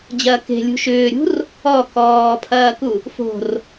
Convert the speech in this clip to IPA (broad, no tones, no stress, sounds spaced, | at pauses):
d͡ʑ ɐː k e̤ lʲ ṳ ʃ ʏː ɾʲ ṳ r | ɔ k ɔː pʰ ɐː k u | f o̤ r